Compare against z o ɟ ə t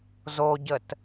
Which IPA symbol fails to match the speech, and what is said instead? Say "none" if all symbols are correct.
none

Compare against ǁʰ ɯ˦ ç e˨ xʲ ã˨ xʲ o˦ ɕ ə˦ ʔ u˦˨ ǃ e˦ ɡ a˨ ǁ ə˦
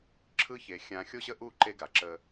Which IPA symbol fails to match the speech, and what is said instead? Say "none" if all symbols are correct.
none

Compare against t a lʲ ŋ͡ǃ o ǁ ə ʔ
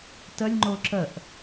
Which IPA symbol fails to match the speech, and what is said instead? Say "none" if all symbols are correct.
a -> ə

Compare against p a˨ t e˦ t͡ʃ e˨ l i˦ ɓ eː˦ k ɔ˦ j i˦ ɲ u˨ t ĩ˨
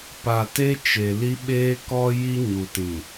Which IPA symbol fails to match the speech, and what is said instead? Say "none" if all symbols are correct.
none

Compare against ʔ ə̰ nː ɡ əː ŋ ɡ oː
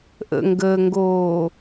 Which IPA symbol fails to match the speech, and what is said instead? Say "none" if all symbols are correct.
nː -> ŋ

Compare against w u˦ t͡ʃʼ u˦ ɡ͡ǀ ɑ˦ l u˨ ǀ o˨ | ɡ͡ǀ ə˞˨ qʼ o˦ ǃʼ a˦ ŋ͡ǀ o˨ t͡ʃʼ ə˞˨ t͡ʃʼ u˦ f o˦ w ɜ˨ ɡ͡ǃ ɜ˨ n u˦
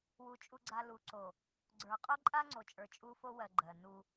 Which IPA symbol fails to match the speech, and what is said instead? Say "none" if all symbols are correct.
ɑ˦ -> a˦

